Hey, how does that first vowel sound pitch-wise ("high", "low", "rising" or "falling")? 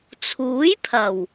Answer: rising